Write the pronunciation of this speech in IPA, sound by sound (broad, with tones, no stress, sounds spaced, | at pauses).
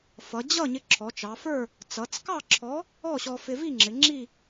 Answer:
f ʌ˩˧ d͡ʑ ʌ˥˨ ɲ ɪ˧ ǁʰ ɔ˩˧ t͡ʃ ɑ˩˧ f ə˞˥˨ | t͡s ʌ˩˧ t͡s k ɑ˥˨ ǁʰ ɔ˨˥ | ɔ˥˨ ɕ ɔ˧ f ɪ˧ v i˥˨ ŋ͡ǁ ɪ˩˧ ŋ͡ǁ i˥˨